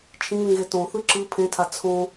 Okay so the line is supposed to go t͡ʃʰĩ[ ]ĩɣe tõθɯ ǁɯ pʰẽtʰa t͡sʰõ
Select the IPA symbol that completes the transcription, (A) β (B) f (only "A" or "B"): A